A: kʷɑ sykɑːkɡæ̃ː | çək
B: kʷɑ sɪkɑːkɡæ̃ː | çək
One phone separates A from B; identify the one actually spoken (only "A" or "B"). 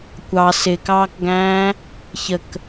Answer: B